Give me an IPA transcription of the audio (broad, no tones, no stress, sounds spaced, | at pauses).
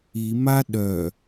i m a ɗ œ